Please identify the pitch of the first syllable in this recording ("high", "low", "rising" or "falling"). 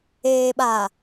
low